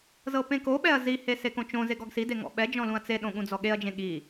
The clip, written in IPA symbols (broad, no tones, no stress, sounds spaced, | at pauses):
z ɤ p ẽ k o ɓ ɛ ɐ̯ z i h e s e k õ t͡ʃ õ z e ɡ ɔ ɡ s i d e ŋ ɔ̰ ɓ ɛ d͡ʒ ɔ̃ l ũ ɐ̯ t͡s e ɗ õ ɠ ũ d͡z ɔ ɠ e ɐ̯ d͡ʒ ẽ ɠ i